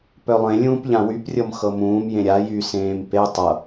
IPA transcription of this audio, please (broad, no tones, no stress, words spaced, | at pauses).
pœlˠẽlʲũːp ʎãwyprʲɤm xɤmũːmjẽ ɾʲa jysẽːm pe tˤɤ